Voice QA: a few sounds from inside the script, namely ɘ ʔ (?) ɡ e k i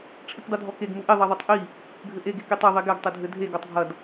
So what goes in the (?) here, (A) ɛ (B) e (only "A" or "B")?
B